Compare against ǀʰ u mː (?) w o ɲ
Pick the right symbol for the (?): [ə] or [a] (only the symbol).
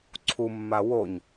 a